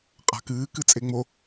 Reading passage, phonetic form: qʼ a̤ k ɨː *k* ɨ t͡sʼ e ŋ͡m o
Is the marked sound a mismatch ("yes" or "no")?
no